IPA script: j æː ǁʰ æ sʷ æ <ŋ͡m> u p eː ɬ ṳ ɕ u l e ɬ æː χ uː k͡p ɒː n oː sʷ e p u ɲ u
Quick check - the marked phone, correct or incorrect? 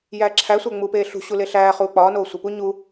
correct